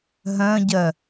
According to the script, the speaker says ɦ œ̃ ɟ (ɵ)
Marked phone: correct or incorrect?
incorrect